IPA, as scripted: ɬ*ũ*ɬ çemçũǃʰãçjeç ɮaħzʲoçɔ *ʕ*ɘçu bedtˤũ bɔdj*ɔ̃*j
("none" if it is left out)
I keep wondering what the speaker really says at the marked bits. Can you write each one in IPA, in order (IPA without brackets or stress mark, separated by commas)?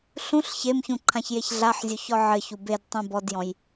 ũ, ʕ, ɔ̃